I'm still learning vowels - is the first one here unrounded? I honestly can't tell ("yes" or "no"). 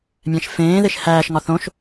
yes